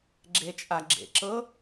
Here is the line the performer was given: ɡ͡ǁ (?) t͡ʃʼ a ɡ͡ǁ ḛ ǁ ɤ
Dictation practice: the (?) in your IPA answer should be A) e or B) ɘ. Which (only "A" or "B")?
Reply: A